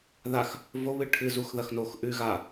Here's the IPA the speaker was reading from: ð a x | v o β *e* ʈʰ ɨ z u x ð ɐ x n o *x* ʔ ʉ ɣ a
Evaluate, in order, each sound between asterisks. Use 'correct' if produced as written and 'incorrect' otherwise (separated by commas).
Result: incorrect, correct